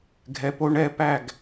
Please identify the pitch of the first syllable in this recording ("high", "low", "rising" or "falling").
low